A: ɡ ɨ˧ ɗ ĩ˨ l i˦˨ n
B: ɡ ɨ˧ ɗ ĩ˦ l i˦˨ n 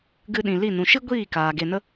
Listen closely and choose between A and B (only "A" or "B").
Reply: A